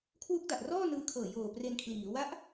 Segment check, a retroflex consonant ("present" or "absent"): absent